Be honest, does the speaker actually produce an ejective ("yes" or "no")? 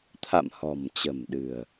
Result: no